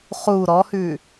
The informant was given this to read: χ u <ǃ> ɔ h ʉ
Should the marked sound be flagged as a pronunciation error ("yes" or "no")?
yes